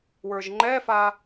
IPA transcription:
w ə˞ ʒ ŋ͡ǃ ɛ f a

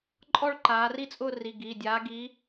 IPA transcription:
ǃʼ ɔ˥˧ ɭ ǃ aː˨˦ r i˥˧ t͡sʼ ʊː˥˧ r i˩˧˩ ɡ i˩˧˩ dʲ aː˨˦ ɡ i˨˦

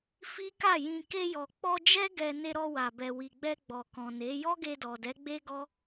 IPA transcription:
f i˦ k a˦˨ j ĩ˧ k e˧ j ɔ˨ k͡p ɔ˧ d͡ʒ ɛ˦ ɡ ɛ˧ n e˧ ɾ ɔ˧ w a˨ b ɛ˨ w i˨ ɡ͡b ɛ˧ ɡ͡b ɔ˨ k ɔ̃˨ n e˨˦ j ɔ˦ ɡ e˧ d ɔ˨ d ɛ˨˦ ɡ͡b e˦ ɡ ɔ˦

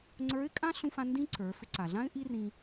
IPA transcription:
ŋ͡ǀ ə˞˧˥ ɪ̯ kʼ ã˥ ɬ ũ˧ f ã˧ n d ĩ˥ ǀ ə˞˩˧ f ʏ˧ ǀ a˩ ɮ ã˥ ɪ̯ ʔ i˥ r ĩ˧

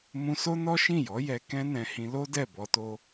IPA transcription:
m ũ˧ s o˦ n ɔ˦ ʃ ĩ˦˨ j ɔ˨˦ j ɛ˧ k ɛ̃˦ n ɛ̃˧ h ĩ˧ l o˦ d ɛ˦˨ b ɔ˧ t o˧

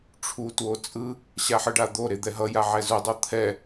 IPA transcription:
ʈ͡ʂʰ u t w o t͡sʼ ɯ | ɕ a ħ ɯ ɖ a d̪ o ɾ e d̪ ɛ ɦ ʌ j a ʕ ɛ z u dˤ o t̪ʰ ɛ

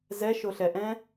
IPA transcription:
z ɛ ʃ o ɬ ɛ ʔ ɛ̃

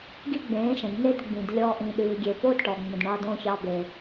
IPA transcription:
ɡ i˦ ɡ͡b ẽː˨˦ ʃ ə̃˨ d n e˧ d ɡ͡b ĩ˨ d lʲ ɔː˦ ʔ ĩ˧ ɗ ʉː˧ ɡʲ e˧ p o˦ d ʈ ɔ˨ ŋ͡m ə̃˨ d ɳ ɑː˧ d õ˦˨ ç ɑ˧ b e˨

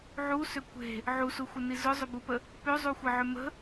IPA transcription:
ʕ u s ʏ kʷ e̤ | ʕ u s u xʷ ə n i z ʊ zˤ ʏ b u p ə | p ø zˤ u xʷ ə ʕ ʏ m ə̤

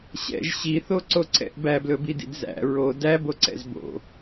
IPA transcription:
ɕ ɛ̰ ʒ ɕ i θ o ǀ o ǀ ɛ̰ ʔ b æ b l ɵ b i d ḭ d z æ̰ ɹ o d æ b o ǀ ɛ̰ z b o̰

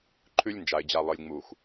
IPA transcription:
ǃʰ ʉ˦ lʲ n d͡ʒ a˨ ɪ̯ d͡ʑ a˨ lˠ ɨ˨ lʲ ŋ͡m u˨ x

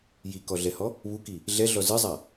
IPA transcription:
j i k ɔ ɮ ɛ h ɔ | β u k i | ɮ ɛ ɮ ɔ z ɨ zˤ a

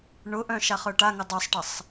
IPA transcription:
ɳ ʊ ʔ œ̃ ʃ a χ œ ʈ a ŋ ʊ dˤ œ sˤ ʈ ə sˤ

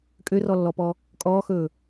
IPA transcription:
kʼ ø r ɔ lː ɔ p ɔ | kʼ ɔː x ɵː

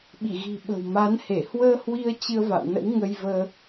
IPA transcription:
ɓ i˧˩ ɣ i̤˨˩ ɓ ə̤˨˩ w m a˨˦ n h e˧˩ h w əː˧ h w i˧ ə̯ t͡ɕ ɨ˧ ə̯ v a̰˧˨ w n ə̰˧˥ w ŋ ə˧ j v əː˧

